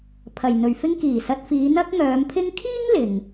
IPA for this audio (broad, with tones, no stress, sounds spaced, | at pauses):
pʰ ɐ˨ j n̪ ɵ˨ ɥ f ɪ˥ ŋ k iː˨˩ s ɐ˧ t̚ f iː˨˧ n̪ ɐ˥ k̚ ŋ œː˨˧ m pʰ ɪ˥ ŋ kʰ iː˥ ŋ l ɪ˨ ŋ